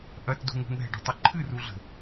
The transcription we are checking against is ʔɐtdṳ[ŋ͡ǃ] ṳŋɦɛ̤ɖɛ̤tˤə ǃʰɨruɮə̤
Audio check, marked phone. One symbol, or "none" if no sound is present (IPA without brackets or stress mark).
ŋ